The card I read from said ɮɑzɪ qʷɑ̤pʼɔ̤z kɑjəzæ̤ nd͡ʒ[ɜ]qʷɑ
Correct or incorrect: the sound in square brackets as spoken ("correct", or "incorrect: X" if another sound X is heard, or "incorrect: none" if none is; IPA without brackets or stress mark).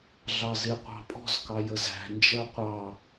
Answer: correct